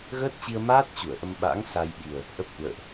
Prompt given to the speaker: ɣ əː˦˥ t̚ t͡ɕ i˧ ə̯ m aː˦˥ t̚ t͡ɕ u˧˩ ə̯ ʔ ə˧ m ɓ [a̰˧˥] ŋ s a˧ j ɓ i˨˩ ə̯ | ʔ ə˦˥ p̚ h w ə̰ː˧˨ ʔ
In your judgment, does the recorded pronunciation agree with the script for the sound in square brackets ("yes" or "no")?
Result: yes